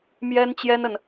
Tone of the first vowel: high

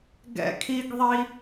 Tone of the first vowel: high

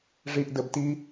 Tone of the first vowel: low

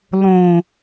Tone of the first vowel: low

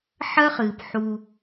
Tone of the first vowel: high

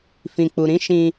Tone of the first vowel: low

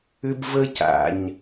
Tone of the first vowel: high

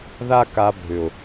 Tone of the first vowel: high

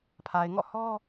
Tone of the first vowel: low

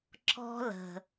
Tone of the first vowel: high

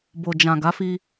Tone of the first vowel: low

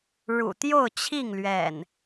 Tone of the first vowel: low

